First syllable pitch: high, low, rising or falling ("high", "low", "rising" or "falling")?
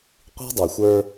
high